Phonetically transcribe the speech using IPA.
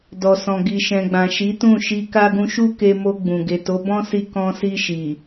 dɔ˨sɔ̃˨ ɡi˨ʃɛ̃˨ɡ͡bã˨ʃi˨˦ tũ˦˨ʃi˧ ka˦ ɡũ˧ʃu˦ke˧ mo˧ɡ͡bũ˨ ɡe˨to˨˦bɔ̃˦si˧ kɔ̃˧si˧ʃi˨

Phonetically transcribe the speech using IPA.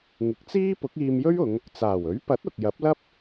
ŋɪ˨˥k̚t͡siː˥ pʊ˨˥k̚iː˧m jɵ˥ɥʊ˨˧ŋ | t͡saː˨˩wɵ˨˥ɥpɐ˨˥t̚ ʊ˨k̚jɐ˨˥p̚lɐ˥p̚

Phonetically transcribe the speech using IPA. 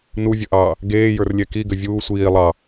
nuvʲəʔɑː | ɡeːjə˞rlʲɛ kiɡɘ vʲuː sʷiː lˠɑ

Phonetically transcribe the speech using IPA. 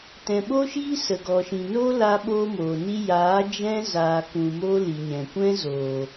tɛ̃˨ɓo˦ʃiː˦ sə˨ɡɔ˨ʃĩ˨no˦ la˦ɓoː˦moː˨ni˦ jaː˨˦ d͡ʒɛ̃˦ zaː˧kũ˧ moː˦ li˨ɲɛ̃˨ kʷɛ̃˦zoː˨

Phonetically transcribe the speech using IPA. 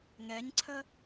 ŋɛɲǀʰə

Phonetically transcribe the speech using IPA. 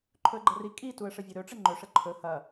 ǃʰɵə̯ɡ͡ǃɐri kʼi tuə̯ʂəvʲɵɾɵ ʈ͡ʂəŋ͡ǃɵ ʂəǃʰɵ hɐ

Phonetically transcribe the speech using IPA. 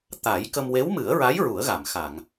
t̪a˨˩˦jkə˧m we˧˥wmɨ˨˩˦ə̯ɹa˧˥j ɹu˨˩˦ə̯ɣa˨˩˨mxa˨˩˨ŋ

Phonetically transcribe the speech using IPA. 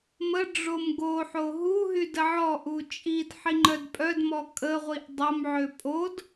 mə ɖ͡ʐomɡoħo ɦuɦy dəʕɔʔu t͡ʃʼid ħiŋ͡ǃœdpʼœdmɔ kʼəʁʷiʔ dˤomʕø pʼod

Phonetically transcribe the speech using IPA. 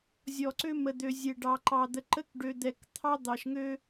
zʲɔ˨ǀø˦mə˨d̪ø˨ zʲe˨ɖɑ˨ǃɑ˨ d̪ə˨ǃə˦kɖø˨ d̪ɛ˨kt̪ʰɑ˦ d̪ɑ˨ʃŋø˦

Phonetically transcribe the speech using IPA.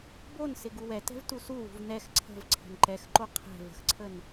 bonsɪ ɡuwɛtɛ̤v tusuwṳv nɛx ǀʰə̤v ǀʰə̤nǃɛxǃo qʰɛ̤ və̤xǀʰən

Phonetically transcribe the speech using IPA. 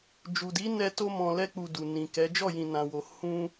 d͡ʒu˨di˨˦ nɛ˧to˧mɔ̃˨ lɛ˧k͡pu˨ du˨nĩ˨kɛ˨˦ d͡ʒɔ˦˨jĩ˨ nã˨wo˨ hũ˧

